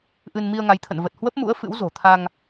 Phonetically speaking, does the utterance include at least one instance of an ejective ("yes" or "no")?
no